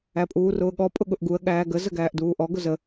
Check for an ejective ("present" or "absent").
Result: present